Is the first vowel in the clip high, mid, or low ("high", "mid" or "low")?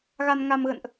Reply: low